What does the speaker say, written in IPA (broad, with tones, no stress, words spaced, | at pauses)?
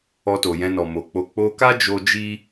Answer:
ɔ˧to˨jɛ̃˧nɔ˨ mo˨k͡po˧ k͡po˧ka˦d͡ʒo˧ d͡ʒi˦